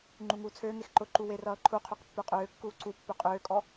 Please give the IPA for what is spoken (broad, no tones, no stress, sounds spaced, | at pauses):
ŋ͡ǃ u ŋ uː t͡sʰ øː ŋ e x ǃ ʊ ǃ u w e r ʌː ǃʰ u qʰ ø q pː ø qʼ øː kː uː ǀ u pː ø qʼ øː kʼ ɔ